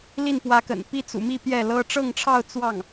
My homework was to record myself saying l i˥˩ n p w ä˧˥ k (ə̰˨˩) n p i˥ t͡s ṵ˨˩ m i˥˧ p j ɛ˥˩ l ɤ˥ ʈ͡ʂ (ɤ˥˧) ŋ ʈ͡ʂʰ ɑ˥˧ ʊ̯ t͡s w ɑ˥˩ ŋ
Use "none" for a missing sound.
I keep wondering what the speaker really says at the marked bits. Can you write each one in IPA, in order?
ə̰˨˩, ɤ˥˧

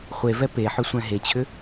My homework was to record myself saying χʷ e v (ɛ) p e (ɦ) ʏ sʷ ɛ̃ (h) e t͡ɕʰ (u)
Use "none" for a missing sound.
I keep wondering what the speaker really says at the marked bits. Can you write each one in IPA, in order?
ɛ, ħ, ɦ, ʏ

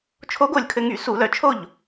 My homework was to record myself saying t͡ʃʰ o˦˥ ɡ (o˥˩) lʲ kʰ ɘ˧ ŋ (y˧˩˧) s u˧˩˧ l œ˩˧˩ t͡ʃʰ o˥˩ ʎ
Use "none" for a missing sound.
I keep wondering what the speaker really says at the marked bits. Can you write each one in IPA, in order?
o˥˩, y˧˩˧

